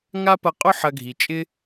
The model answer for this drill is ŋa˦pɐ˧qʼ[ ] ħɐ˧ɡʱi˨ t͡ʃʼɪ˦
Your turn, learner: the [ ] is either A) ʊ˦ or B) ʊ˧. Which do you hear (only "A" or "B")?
A